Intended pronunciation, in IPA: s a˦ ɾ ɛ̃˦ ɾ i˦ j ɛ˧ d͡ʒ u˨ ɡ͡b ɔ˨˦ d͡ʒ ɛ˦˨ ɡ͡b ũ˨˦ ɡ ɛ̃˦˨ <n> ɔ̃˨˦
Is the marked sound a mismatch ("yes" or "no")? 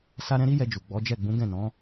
no